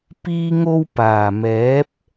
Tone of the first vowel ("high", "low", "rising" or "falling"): high